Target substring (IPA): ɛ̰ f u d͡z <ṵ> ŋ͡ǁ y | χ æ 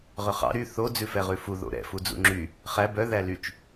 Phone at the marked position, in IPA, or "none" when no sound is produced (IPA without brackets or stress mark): ṵ